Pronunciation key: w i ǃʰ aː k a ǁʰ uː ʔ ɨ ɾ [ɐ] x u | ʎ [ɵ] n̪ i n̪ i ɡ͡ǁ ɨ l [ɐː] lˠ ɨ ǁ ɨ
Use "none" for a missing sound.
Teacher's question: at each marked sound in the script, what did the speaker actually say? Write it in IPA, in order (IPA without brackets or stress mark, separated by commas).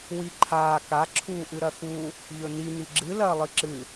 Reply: ɐ, ɵ, ɐː